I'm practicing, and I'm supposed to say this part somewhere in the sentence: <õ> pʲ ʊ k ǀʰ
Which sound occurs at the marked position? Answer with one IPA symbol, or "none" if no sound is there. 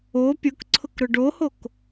o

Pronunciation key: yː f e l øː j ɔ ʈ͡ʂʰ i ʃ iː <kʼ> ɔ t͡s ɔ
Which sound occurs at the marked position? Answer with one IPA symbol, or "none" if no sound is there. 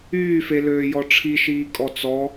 kʼ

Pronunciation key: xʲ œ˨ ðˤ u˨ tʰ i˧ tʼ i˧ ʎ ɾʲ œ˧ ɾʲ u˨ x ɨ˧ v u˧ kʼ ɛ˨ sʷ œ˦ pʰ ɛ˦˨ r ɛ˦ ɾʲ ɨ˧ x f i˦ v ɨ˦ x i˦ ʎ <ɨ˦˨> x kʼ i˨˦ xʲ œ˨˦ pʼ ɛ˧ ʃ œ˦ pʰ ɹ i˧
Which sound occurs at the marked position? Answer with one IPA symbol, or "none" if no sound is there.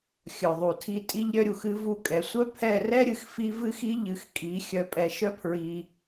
ɨ˧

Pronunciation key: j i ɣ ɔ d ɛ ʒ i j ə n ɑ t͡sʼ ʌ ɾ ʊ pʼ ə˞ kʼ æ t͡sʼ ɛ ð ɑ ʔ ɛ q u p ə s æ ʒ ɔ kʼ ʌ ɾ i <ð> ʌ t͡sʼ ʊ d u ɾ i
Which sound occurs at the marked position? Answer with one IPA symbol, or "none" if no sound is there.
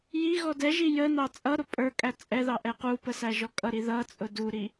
ð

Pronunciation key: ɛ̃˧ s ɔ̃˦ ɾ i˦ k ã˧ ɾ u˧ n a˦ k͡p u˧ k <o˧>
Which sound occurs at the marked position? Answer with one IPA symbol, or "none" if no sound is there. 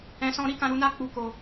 o˧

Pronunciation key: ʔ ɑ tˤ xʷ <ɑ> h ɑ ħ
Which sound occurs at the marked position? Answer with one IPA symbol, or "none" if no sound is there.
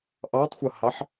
ʌ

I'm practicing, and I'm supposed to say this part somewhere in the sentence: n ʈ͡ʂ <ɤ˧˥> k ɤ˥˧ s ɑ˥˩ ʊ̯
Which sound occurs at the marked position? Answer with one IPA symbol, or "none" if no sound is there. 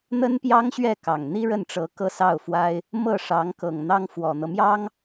ɤ˧˥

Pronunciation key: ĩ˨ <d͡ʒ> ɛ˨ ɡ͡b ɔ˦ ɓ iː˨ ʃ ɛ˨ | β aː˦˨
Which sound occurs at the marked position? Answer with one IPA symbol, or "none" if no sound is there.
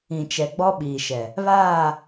t͡ʃ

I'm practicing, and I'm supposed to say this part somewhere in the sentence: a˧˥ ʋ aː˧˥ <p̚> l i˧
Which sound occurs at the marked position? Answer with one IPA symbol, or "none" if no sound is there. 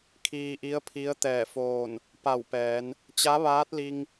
t̚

